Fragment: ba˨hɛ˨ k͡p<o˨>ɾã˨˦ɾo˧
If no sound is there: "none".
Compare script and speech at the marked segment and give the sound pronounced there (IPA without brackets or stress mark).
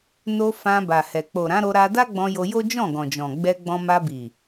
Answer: o˨